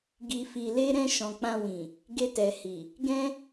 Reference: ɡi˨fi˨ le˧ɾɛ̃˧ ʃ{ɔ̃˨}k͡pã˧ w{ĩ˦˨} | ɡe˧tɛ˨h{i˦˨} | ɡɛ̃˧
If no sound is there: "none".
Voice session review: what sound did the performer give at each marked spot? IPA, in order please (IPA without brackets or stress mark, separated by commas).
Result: ɔ̃˨, ĩ˨, i˨